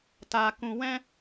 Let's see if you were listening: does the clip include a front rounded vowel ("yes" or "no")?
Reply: no